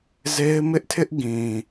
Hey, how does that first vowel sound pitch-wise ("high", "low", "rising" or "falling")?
high